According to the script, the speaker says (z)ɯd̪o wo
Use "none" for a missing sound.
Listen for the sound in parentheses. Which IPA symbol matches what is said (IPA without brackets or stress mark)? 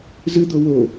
z